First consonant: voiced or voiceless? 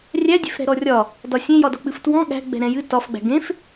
voiced